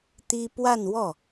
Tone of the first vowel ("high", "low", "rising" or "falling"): high